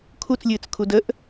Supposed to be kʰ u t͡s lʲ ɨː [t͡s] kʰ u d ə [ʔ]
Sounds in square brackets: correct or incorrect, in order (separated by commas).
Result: correct, correct